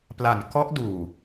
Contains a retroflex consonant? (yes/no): no